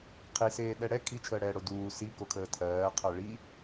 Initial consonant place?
uvular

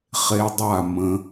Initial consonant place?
uvular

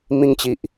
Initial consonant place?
labial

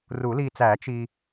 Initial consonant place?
alveolar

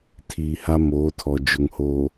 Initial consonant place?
alveolar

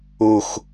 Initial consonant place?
velar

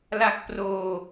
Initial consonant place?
alveolar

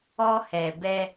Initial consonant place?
glottal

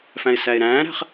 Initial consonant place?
labial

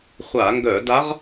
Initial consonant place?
uvular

